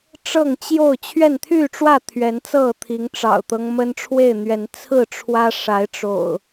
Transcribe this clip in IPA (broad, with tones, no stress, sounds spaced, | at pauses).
ʈ͡ʂ ɤ˥˨ ŋ t͡ɕ j o˥˨ ʊ̯ t͡ɕʰ ɥ ɛ˥˨ n t̪ʰ y˥˨ ʈ͡ʂ w ä˥˨ t̪ʰ ɥ ɛ˨˦ n t͡s ɤ˥˨ t̪ʰ i˨˦ ŋ ʈ͡ʂ ɑ̰˨˩ ʊ̯ t̪ ɤ˦ ŋ m ə˦ n ʈ͡ʂʰ w e˥˨ ɪ̯ n̪ ɥ ɛ˨˦ n t͡sʰ ɹ̩˥˨ ʈ͡ʂʰ w ä˦ ʂ a˨˦ ɪ̯ ʈ͡ʂ o̰˨˩ ʊ̯